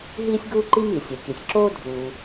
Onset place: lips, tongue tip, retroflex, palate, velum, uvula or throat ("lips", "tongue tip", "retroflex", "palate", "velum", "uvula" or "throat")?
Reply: throat